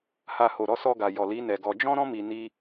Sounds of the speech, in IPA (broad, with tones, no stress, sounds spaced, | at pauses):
h a˨ h o˨ ɾ ɔ˨˦ s ɔ˧ ɡ a˨ j ɔ˨ l i˨˦ n ɛ˧ ɡ ɔ˧ d͡ʒ ɔ̃˦ ɾ ɔ̃˦ m i˧ n i˦